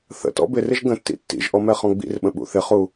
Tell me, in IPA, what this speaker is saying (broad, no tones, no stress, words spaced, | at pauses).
θə̰tɔ̰ bɪrɪʒ ɡə̃tːḭ tːḭʒʔɔ mɛχɔ̃ɡ͡bḭrɓə̃ ɓṵθɪχu